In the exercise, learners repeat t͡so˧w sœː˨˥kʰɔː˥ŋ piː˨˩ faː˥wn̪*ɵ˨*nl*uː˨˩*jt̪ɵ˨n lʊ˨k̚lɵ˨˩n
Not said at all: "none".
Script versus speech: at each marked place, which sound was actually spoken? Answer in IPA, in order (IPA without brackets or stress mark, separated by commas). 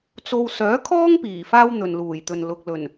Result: ɵ˨, uː˨˩